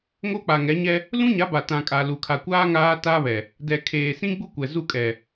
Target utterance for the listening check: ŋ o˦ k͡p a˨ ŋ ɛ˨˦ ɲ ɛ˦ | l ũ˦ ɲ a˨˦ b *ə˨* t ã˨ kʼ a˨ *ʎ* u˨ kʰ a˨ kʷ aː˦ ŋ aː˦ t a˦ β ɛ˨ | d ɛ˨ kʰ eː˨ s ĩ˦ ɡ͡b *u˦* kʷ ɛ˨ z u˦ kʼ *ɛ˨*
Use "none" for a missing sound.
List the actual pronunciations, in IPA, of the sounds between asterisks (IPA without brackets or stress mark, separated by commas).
a˨, l, u˦, ɛ˨